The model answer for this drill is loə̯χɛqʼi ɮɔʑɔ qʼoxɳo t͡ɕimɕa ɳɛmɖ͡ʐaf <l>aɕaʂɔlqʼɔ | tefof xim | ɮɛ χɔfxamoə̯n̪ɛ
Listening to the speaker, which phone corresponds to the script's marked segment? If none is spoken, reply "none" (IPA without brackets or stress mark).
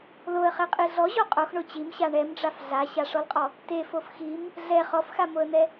ɮ